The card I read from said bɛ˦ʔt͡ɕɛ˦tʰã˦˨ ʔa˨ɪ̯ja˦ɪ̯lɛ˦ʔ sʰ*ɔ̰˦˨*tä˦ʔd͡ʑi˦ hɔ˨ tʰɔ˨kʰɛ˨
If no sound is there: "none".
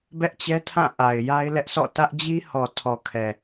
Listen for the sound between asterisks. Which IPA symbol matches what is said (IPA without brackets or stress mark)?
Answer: ɔ̰˦˨